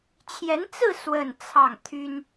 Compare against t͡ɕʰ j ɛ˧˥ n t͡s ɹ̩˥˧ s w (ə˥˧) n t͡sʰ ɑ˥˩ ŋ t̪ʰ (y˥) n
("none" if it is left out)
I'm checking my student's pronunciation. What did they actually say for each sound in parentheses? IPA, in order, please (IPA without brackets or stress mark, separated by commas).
ə˥˧, y˥